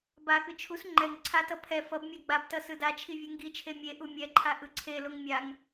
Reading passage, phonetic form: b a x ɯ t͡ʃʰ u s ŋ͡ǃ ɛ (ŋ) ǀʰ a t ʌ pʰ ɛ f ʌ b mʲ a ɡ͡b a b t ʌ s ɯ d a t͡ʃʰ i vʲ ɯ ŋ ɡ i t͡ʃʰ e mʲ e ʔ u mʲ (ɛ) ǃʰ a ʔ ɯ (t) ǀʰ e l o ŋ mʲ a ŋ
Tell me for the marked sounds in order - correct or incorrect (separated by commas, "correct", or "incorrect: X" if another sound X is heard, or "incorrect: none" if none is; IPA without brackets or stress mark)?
correct, correct, incorrect: none